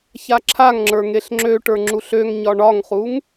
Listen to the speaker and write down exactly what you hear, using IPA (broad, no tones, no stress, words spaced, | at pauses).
çaǁʰaŋŋ͡ǁə˞ ŋeɬŋ͡ǁøʈə˞ ŋ͡ǁuɬøŋɲɒ ɳɒŋχuŋ